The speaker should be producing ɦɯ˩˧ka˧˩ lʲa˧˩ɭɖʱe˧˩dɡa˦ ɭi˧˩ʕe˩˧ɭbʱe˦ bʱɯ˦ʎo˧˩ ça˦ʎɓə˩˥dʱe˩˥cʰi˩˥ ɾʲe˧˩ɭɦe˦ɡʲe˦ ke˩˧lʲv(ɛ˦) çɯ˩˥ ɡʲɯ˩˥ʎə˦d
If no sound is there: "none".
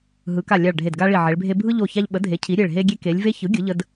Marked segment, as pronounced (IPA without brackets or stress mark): e˦